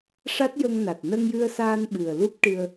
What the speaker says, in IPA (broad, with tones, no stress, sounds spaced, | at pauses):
ʂ a˦˥ t̚ j ə˧ ŋ n a˨˩ t̚ n ə˧ ŋ j ɨ˧ ə̯ s aː˧ n ɓ ɨ˨˩ ə̯ l u˦˥ p̚ ʈ ɨ˧ ə̯